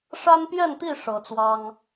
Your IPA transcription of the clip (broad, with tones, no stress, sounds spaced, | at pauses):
ʂ a˦ n p j ɛ˥˨ n t̪ i˥˨ ʂ ɤ˨˦ t͡s w ɑ˦ ŋ